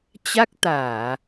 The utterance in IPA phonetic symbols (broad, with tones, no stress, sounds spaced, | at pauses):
t͡ɕ a˦˥ k̚ t̪ aː˧˩˨